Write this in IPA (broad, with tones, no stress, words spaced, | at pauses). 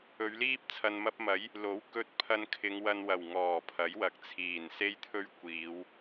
ɵ˨˧ɥliː˥p̚ t͡sʰɐ˨nmɐ˧p̚mɐ˨˥j | lo˨˥wkɵ˧t̚ pʰɐ˧nkʰɪ˨˧ŋwɐ˧nwɐ˨˩w ŋɔː˨˩pʰɐ˨˥jwɐ˨k̚ t͡sʰiː˨˩nse˥jt̪ʰɵ˥ɥ kʷiː˨˧w